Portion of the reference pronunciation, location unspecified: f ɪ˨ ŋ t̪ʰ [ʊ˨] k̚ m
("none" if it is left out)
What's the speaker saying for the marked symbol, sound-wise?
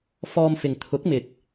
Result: ʊ˨˥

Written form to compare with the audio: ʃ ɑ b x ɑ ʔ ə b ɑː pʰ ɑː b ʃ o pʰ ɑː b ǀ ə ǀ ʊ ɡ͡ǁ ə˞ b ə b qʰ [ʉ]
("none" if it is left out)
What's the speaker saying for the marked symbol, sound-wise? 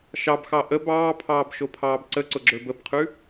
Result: ʉ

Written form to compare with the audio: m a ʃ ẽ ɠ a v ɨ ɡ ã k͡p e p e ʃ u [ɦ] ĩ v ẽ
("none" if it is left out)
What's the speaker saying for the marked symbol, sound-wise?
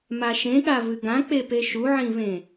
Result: ʕ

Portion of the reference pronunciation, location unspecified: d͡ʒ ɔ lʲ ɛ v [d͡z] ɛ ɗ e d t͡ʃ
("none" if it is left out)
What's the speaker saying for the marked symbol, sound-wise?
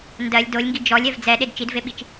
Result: d͡z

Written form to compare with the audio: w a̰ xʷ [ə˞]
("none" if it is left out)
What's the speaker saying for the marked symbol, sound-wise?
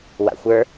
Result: ə˞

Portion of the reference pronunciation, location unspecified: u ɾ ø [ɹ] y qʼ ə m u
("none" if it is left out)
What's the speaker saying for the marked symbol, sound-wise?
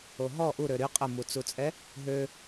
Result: ɾ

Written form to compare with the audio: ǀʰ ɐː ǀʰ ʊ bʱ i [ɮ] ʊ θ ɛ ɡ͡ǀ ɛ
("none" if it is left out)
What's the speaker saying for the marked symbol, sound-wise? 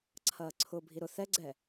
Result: ɾ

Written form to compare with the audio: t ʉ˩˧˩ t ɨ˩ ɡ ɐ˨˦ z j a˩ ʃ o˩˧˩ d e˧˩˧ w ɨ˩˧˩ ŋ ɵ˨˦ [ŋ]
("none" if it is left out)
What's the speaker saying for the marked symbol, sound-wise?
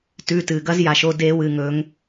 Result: ŋ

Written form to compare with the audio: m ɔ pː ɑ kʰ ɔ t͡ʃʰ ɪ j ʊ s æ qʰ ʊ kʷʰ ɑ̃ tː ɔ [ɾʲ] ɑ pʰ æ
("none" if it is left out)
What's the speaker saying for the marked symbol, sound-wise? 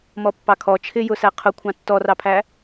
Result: r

